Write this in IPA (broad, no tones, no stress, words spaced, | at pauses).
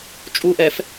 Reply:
t͡ʃʼuʔɛf